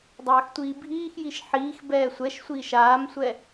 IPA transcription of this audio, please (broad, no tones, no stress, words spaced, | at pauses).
dˤaːxtʷiːbʱiːxjiʃ ħiːx bɛːsʷɛʃsʷiːʃ aːmsʷɛ